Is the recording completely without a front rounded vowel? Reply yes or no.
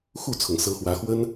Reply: yes